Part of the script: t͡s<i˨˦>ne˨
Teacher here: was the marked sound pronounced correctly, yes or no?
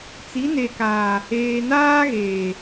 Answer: yes